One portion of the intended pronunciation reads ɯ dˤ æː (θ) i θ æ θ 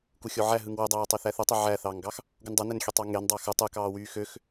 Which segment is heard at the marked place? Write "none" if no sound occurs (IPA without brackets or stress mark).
tˤ